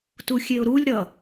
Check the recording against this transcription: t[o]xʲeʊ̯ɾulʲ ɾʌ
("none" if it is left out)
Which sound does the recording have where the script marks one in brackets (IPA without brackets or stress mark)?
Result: u